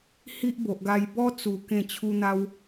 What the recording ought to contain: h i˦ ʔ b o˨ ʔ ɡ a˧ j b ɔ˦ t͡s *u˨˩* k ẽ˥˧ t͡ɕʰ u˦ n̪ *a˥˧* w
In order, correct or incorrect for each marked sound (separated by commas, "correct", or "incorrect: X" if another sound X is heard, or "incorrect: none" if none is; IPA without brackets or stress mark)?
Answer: correct, incorrect: a˦